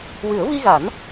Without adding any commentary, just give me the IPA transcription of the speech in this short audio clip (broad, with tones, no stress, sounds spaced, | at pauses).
w ɨ˨˩˦ ə̯ v i˧ ɣ a˨˩˦ n